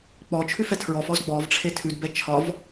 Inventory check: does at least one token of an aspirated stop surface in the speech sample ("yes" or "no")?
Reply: yes